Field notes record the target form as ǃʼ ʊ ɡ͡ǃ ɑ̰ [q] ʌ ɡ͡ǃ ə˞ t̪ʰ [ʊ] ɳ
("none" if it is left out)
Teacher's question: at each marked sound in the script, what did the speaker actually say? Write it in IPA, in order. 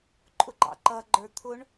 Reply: ǃ, ʊ

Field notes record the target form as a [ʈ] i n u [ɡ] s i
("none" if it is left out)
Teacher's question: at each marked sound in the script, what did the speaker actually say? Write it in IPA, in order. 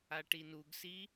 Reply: ʈ, ɡ

